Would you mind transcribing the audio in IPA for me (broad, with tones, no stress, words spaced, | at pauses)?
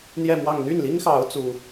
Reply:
n̪jɛ˥˧mwɑ˥˧ŋ n̪y˥˩nli˥ŋxɑ˧˥ʊ̯ t͡su˥